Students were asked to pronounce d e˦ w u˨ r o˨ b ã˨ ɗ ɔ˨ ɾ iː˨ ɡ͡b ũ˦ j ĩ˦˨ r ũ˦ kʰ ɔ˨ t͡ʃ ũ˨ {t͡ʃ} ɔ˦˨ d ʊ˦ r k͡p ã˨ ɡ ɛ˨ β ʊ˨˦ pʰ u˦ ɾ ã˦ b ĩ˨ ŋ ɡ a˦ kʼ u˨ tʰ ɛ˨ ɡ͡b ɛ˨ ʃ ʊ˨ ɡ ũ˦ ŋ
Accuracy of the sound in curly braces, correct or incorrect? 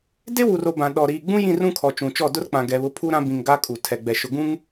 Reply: correct